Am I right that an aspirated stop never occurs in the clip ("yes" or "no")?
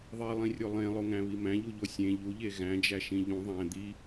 yes